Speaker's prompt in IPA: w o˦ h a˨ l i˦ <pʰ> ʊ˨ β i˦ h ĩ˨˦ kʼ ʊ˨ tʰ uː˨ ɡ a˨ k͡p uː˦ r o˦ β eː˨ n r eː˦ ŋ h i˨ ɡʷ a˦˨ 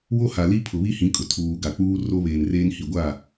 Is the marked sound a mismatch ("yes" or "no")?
no